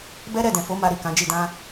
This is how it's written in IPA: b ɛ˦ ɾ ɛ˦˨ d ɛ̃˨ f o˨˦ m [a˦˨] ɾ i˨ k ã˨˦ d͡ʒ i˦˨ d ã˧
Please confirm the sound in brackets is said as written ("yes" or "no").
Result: no